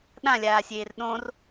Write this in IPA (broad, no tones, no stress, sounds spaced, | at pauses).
ɗ ã lʲ aː sʲ eː r ɗ õ r